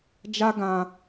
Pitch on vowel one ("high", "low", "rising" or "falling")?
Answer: high